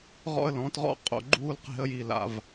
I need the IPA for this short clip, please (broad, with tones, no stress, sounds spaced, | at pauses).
ʁ ɔ̰˦ ə̯ l ɔ̃˨˦ t ʁ ɔ̰˦ qʼ o̰˦˨ ɡ͡ǃ uː˦ l q e̤˦ ə̯ j i˦˨ l a̰˨ v